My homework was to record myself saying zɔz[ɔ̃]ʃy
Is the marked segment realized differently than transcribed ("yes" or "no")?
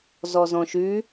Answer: no